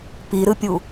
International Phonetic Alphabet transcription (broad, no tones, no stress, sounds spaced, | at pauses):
p i ɾ ɯ pʲ u